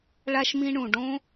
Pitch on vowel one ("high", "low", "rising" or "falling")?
high